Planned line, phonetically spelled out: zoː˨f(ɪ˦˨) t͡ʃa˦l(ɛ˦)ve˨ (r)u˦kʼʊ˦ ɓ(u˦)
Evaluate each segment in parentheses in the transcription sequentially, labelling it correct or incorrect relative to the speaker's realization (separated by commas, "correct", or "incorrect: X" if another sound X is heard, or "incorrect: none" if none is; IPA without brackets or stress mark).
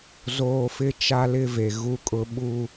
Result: incorrect: ɪ˦, incorrect: ɪ˦, incorrect: ɣ, correct